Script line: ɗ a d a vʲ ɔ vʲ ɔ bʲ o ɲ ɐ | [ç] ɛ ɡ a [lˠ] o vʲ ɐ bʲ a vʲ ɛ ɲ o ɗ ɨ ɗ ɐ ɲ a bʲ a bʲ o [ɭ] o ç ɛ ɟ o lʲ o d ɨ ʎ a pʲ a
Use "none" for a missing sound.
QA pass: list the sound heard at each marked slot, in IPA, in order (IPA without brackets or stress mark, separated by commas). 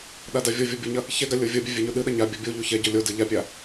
ç, lʲ, ʎ